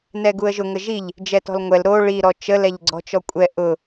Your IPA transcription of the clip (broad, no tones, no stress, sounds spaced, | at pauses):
n ɛ ɡ u ə̯ ʒ ʊ ŋ ə ʒ i ʎ | d͡ʒ ɛ t ɔ̤ l ŋʷ ɛ l ɾ o ɭ i ɾ ɔ t͡ʃ ə l ɛ ʎ ɡ͡ǀ ɔ̤ t͡ʃ ɔ kʷʼ ɛ ʔ ʊ